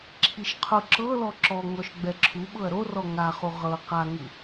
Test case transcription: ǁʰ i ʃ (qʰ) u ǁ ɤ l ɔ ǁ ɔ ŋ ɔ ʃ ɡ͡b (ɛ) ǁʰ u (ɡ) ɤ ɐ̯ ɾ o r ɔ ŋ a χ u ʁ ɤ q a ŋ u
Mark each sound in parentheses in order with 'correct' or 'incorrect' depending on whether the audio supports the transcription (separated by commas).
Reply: correct, correct, incorrect